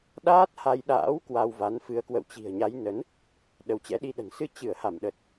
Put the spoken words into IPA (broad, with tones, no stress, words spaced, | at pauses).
ɗaː˦˥t̚ha˧jɗa̰ː˧˥w kwa˧wva˨˦nfɨ˨˦ə̯ kwə̰˧˨wt͡ɕi̤˨˩ə̯ɲa˨˦j nə˨˦n | ɗə˨˦wt͡ɕɛ̰˧˥ ɗi˧ɗə̤˨˩n sɨ˧t͡ɕɨ˧˩ə̯ha˧˩mɗə˨˩t̚